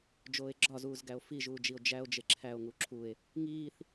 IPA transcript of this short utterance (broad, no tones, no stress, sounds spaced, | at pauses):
d͡ʒ oː e̯ ɡ͡ǁ ɒ z uː z ɡ æ o̯ f i ʒ uː d͡ʒ i o̯ d͡ʒ æ o̯ d͡ʒ e ǁʰ æ o̯ ŋ u ǁʰ u e̯ | ŋ iː θ